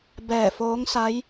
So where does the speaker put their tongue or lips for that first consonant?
lips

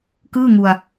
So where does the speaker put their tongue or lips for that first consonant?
velum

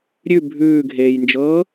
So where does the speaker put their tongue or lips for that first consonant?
tongue tip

